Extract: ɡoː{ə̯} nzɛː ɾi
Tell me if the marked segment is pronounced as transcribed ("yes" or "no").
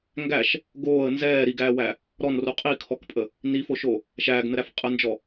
yes